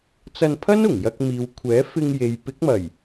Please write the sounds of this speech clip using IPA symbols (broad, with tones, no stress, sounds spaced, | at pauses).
t͡s ɐ˧ n pʰ ɐ˥ n ʊ˨˩ ŋ j ɐ˧ k̚ m iː˨ w kʷʰ ɛː˨˥ f ɪ˧ ŋ j e˨ j p ɪ˨˥ k̚ m ɐ˨˩ j